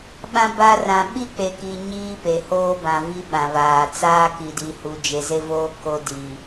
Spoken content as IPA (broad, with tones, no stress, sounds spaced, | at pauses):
ɓ ã˦ b a˦ r ã˨ ɓ i˦ k͡p e˨ k i˨ ɲ iː˦ p e˨ h oː˦ b ã˨ v i˦ ɓ ã˨ β aː˨ t͡s aː˦ k i˨ d i˨ h u˨ d͡ʒ e˨ z e˦ v oː˦ k o˦ d i˨